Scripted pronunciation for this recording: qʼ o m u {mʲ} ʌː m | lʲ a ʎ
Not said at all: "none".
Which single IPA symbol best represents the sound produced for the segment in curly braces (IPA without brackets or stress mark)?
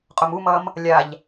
m